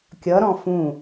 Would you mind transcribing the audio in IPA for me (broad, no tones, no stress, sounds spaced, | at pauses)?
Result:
kʲ ʌ ɾ ɔ̃ f ũ